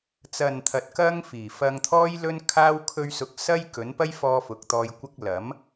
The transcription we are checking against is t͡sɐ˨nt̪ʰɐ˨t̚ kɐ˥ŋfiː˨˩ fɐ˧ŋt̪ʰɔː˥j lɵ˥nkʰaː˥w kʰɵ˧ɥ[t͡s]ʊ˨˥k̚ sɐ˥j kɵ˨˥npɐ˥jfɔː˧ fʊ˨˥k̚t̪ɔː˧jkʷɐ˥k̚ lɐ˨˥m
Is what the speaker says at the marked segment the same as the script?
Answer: no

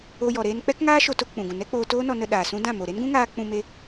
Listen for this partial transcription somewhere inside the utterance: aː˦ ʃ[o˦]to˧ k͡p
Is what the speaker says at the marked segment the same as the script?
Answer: no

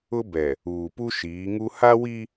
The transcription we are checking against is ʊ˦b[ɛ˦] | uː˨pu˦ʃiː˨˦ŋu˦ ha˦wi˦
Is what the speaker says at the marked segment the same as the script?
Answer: no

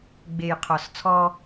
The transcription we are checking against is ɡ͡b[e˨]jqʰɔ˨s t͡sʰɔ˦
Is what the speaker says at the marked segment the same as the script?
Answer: yes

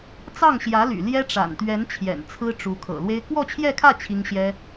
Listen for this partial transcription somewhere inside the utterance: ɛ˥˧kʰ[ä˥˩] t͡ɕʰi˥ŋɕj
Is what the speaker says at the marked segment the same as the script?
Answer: yes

